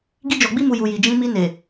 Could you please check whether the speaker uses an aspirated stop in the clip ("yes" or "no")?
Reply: no